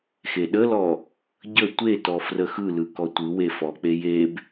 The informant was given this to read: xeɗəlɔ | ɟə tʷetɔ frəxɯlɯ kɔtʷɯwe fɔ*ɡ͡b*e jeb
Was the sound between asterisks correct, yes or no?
no